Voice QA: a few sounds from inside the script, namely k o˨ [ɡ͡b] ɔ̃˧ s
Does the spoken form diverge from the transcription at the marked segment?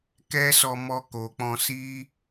yes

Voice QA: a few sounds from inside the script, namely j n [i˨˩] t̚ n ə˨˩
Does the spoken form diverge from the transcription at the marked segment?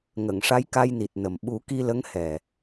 no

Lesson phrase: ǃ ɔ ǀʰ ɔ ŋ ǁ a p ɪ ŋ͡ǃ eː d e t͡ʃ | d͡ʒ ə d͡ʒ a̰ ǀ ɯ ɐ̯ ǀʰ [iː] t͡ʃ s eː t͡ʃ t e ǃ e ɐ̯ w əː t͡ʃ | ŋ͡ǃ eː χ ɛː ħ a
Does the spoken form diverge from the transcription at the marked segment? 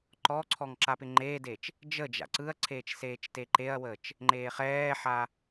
yes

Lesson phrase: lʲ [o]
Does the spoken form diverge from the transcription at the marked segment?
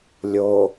no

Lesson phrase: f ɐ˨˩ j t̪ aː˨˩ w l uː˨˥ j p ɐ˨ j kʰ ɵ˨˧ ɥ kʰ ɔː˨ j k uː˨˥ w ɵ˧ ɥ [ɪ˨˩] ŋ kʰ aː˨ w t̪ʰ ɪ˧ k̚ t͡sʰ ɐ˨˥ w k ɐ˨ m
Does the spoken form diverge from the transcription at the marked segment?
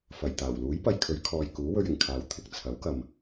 no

